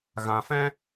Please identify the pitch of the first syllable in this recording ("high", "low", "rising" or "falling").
low